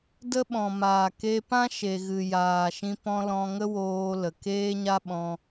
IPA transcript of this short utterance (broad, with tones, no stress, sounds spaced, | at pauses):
d ə˦ ɓ ɔ̃˨ m aː˨ k e˧ p ã˦ ʃ e˨ ɣ ɨ˨ j aː˨ ʃ ĩ˧ p ɔ̃˦ l ɔ̃˧ ŋ ə˦ w oː˧ l ə˨ k eː˦ ɲ a˦ ɓ ɔ̃˧